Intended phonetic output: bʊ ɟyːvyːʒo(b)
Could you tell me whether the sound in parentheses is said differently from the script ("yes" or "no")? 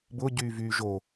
yes